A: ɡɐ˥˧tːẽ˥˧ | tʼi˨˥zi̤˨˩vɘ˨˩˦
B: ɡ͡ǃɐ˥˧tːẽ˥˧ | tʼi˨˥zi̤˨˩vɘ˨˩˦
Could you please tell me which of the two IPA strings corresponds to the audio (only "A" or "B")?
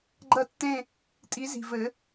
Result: B